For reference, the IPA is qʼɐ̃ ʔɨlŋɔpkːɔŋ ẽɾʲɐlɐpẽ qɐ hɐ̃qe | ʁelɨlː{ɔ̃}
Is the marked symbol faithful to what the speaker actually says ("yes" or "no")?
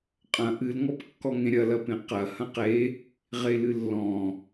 yes